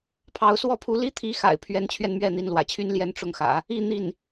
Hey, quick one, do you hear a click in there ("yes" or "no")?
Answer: no